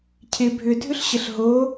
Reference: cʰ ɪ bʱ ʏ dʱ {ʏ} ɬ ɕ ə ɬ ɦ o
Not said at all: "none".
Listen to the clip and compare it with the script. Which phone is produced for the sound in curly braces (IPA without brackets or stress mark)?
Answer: ʏ